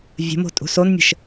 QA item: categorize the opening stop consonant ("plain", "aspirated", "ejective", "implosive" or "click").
ejective